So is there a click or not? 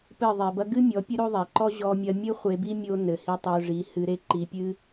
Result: yes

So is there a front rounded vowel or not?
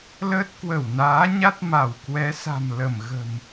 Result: no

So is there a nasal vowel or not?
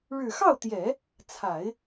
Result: no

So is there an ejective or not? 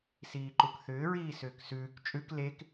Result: yes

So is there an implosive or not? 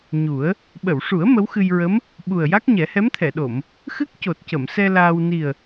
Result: yes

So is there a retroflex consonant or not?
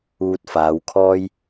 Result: no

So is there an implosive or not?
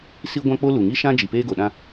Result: yes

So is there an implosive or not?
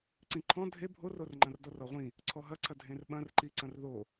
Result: yes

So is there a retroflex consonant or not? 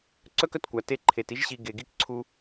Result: no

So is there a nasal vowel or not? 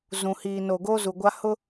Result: yes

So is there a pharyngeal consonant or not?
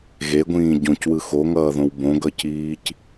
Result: no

